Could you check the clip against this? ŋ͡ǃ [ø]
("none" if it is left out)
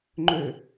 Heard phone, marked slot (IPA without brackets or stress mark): ø